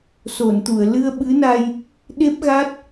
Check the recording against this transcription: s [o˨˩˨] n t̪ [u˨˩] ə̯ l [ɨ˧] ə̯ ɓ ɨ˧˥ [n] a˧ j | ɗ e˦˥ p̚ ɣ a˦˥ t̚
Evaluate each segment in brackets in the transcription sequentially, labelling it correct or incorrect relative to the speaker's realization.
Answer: correct, incorrect: u˨˩˨, correct, correct

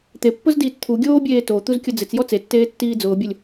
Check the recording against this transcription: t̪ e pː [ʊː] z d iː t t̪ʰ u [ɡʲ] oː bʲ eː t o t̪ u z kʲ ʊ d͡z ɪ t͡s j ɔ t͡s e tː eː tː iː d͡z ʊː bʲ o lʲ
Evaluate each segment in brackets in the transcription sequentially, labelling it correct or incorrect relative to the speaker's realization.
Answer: incorrect: ʊ, correct

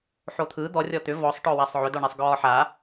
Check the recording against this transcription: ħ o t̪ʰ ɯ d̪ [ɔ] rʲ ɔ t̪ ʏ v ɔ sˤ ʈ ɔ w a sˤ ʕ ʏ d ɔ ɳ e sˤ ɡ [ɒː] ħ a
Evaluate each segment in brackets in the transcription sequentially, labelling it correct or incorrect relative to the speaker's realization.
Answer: correct, correct

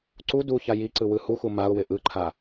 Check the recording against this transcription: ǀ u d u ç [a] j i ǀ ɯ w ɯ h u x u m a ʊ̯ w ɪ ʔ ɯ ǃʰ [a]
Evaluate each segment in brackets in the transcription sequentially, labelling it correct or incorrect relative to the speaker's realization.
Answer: correct, correct

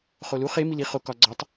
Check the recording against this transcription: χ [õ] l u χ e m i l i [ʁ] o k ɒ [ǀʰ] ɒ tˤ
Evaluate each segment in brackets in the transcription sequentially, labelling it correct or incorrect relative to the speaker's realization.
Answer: incorrect: o, incorrect: χ, incorrect: ɡ͡ǀ

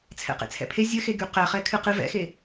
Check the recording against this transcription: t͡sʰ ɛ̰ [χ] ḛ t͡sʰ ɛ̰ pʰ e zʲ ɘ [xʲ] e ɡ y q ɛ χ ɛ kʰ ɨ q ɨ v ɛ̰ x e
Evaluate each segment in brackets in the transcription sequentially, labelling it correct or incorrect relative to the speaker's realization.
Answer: incorrect: q, incorrect: x

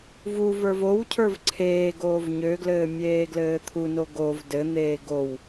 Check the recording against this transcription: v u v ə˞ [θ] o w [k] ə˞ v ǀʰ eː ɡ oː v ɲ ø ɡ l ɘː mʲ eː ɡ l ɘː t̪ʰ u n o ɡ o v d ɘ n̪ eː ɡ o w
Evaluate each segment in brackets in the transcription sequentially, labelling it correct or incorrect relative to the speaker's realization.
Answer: incorrect: v, incorrect: cʰ

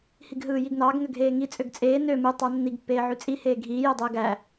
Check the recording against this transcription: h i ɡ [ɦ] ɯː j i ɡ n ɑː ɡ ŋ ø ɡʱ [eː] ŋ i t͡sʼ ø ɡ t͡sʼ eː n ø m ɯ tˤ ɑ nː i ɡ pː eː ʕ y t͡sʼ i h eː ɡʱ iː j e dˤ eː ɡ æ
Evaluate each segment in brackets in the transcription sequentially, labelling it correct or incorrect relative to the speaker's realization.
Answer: correct, correct

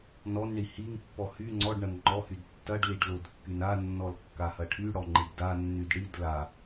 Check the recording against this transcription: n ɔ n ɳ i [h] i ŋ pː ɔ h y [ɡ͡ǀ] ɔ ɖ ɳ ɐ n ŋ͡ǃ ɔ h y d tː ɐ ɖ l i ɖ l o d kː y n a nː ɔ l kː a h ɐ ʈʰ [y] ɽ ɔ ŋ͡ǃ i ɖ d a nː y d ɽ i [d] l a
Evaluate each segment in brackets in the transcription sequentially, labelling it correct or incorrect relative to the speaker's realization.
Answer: correct, incorrect: ŋ͡ǀ, correct, correct

